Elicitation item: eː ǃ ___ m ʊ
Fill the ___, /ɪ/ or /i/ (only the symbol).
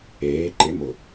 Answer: ɪ